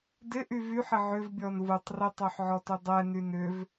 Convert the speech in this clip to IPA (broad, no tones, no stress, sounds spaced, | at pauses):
d ɪ ʔ y v y ħ ɪ ʕ ʏ v bʲ ɔ n v u tˤ r ɪ tˤ ø ħ ʕ ɔ t ʏ dˤ ɛ n y n ʏ v